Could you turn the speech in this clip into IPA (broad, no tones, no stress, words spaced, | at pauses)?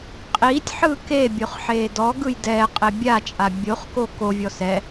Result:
qʼiːtʲħɯː kebʲoχ ħeːdɔɡɯj dɛːqʼe bʲat͡ʃʼa bʲoχko kovʲɔ sɛ